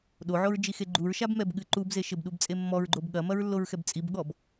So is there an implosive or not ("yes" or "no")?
yes